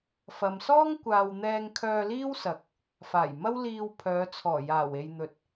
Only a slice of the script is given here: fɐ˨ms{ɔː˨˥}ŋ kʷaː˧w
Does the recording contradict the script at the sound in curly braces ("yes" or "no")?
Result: yes